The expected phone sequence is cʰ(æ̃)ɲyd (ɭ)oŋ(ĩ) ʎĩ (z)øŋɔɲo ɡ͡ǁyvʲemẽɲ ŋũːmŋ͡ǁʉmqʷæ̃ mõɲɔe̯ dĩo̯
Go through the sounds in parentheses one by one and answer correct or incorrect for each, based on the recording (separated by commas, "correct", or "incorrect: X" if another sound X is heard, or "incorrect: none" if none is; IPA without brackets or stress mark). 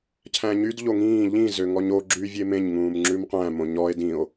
correct, incorrect: ʎ, incorrect: ĩː, correct